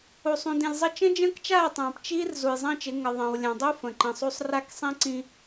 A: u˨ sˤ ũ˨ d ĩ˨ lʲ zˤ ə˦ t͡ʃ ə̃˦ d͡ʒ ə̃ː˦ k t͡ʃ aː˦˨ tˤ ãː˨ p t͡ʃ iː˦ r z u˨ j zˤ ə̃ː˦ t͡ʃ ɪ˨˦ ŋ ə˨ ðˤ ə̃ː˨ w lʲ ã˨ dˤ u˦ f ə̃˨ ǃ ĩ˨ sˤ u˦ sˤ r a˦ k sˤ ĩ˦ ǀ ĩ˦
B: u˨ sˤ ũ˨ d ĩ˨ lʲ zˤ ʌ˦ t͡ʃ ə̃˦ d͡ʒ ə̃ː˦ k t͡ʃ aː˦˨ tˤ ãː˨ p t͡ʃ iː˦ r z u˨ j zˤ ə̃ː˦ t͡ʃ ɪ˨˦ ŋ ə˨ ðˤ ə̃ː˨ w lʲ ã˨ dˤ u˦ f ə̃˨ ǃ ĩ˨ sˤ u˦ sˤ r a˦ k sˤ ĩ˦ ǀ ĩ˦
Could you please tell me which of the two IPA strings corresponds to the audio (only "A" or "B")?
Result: A